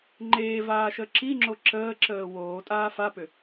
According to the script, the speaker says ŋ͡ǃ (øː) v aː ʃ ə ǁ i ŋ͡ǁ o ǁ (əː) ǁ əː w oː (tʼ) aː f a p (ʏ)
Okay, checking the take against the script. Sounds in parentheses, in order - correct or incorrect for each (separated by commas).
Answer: incorrect, correct, correct, correct